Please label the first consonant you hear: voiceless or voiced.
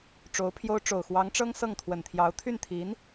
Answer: voiceless